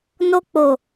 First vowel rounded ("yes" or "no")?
yes